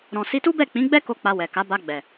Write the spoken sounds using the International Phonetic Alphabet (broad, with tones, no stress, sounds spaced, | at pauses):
ɾ ɔ̃˨ s i˧ t u˦ b ɛ˦˨ k͡p ĩ˨˦ ɡ͡b ɛ˦ k o˧ k͡p a˧ w ɛ˨ k a˨˦ b a˧ ɡ͡b ɛ˨